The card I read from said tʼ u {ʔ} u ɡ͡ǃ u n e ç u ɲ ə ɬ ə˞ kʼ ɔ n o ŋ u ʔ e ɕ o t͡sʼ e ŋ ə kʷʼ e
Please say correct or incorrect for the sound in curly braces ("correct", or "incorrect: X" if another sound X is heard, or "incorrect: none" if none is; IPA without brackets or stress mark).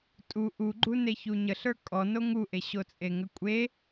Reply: correct